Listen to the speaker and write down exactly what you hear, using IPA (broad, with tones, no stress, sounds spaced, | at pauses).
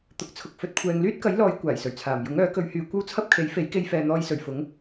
t̪ ʊ˨ k̚ t͡sʰ ʊ˨ k̚ f ɵ˨ t̚ kʷʰ ɛː˨ ŋ l yː˥ t̚ k ɐ˨˥ j l ɔː˨˧ j kʷ aː˨˩ j s ɵ˨˩ ɥ t͡sʰ aː˨˩ m j ʊ˨˥ ŋ œː˨˥ k ɵ˨˧ ɥ h yː˨˧ kʷ ɐ˥ w t͡sʰ ɐ˥ p̚ kʰ e˨˥ j f e˨˥ j k e˧ j f ɛː˨ n̪ ɔː˧ j s ɵ˨˩ ɥ f ʊ˨˥ ŋ